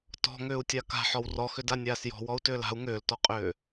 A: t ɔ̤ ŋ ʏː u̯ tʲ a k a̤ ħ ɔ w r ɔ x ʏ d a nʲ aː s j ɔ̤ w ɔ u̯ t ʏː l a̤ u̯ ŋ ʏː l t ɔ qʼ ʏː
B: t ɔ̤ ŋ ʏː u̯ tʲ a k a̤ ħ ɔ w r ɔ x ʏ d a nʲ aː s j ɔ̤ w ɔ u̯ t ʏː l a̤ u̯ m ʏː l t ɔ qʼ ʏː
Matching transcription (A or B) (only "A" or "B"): A